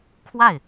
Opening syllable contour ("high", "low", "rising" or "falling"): falling